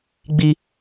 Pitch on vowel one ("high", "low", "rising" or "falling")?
high